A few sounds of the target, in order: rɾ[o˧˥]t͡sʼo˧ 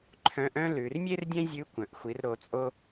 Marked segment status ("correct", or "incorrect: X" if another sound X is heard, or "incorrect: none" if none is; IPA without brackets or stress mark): incorrect: o˩˧